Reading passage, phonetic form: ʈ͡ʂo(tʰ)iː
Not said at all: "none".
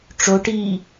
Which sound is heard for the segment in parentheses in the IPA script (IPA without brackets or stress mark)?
ʈ